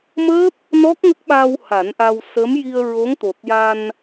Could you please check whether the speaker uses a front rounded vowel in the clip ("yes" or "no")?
no